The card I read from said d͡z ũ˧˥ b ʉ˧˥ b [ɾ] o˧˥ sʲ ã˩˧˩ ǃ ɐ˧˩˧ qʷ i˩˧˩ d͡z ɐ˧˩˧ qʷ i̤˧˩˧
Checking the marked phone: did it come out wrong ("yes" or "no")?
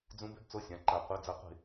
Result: yes